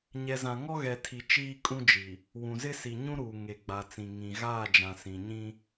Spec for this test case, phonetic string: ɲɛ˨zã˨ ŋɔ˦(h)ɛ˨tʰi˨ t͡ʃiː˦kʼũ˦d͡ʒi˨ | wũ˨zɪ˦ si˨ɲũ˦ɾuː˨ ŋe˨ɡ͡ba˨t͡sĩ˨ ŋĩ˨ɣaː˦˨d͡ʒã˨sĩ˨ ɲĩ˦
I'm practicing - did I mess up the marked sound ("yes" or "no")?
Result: yes